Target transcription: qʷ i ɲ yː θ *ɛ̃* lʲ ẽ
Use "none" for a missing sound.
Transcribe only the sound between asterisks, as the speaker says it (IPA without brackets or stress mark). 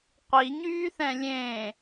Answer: ɛ̃